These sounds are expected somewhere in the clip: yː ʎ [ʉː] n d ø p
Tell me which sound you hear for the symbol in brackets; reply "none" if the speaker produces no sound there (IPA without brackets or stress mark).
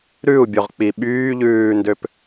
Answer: ʉː